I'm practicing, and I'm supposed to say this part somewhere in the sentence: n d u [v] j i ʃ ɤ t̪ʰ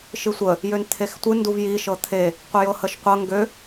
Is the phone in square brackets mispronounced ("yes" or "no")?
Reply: no